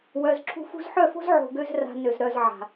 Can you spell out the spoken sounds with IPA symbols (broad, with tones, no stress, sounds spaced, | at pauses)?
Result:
w œ˨ z ǁʰ ṳ˧ f ṳ˧ z ħ œ˦˨ f o̤˦ z ʕ o̤˧ ɡ ø˦ z r a̤˧ n ø˨ z ɾ œ˨ z ʕ a̤˨